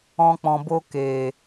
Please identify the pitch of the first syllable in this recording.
high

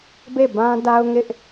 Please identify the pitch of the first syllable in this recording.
falling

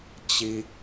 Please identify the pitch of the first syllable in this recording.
high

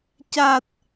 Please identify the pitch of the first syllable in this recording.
low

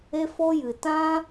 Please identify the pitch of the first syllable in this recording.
high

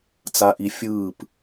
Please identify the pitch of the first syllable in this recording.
low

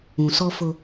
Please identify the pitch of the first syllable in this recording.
low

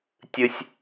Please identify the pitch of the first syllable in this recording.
high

